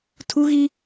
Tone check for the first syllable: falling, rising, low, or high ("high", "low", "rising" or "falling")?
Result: high